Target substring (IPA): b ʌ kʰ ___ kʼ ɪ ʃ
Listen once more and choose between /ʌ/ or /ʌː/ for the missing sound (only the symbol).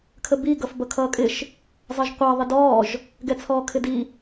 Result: ʌː